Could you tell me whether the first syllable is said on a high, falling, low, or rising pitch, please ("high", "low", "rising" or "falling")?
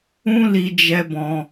high